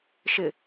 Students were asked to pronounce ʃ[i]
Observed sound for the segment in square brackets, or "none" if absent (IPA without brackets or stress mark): ɪ